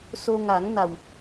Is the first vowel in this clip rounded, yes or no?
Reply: yes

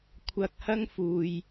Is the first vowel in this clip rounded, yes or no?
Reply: no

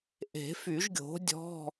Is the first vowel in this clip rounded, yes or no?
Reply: no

